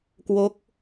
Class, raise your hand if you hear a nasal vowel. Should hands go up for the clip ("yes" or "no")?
no